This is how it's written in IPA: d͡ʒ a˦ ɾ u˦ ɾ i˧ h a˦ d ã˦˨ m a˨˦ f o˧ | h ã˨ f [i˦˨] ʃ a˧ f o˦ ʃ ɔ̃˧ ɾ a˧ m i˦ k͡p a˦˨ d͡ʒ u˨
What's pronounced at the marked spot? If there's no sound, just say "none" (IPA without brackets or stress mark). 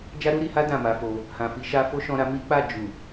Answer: i˨˦